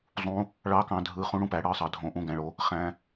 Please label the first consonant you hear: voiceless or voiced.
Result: voiced